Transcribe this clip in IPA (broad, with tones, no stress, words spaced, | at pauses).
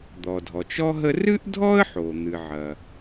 d̪ɔ˩dʱɔ˩t͡ʃɔ˥ ɦə˥ rɨ˥ʔdʱɔ˥ə̯ħo˩ n̪ɨ˩ʕɐ˩